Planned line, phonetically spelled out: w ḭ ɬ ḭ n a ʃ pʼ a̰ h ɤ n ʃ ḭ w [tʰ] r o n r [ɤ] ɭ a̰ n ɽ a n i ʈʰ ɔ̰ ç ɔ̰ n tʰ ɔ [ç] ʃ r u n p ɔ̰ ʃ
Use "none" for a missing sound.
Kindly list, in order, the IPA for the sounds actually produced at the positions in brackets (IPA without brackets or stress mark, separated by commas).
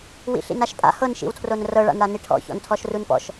tʰ, ɤ, none